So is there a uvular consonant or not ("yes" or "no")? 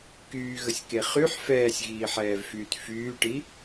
yes